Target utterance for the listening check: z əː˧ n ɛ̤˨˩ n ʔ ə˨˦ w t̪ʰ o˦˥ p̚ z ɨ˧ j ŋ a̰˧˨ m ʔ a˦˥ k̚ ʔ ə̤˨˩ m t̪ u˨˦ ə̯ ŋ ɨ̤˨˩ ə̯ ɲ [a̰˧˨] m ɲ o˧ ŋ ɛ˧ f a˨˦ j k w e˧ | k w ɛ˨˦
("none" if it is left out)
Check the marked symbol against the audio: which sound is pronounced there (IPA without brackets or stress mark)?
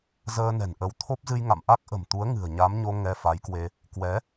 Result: a˨˦